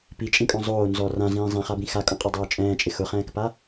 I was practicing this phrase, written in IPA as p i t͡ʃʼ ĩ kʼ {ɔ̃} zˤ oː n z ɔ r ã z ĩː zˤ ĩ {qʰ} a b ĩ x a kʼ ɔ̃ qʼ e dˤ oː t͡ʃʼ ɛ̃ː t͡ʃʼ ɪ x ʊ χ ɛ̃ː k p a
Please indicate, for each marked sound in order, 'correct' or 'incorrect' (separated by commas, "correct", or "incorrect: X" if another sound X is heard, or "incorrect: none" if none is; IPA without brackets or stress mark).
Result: correct, incorrect: χ